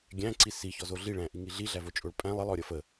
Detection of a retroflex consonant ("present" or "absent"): present